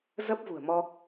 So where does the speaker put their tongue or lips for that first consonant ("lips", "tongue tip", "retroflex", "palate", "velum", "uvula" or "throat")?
tongue tip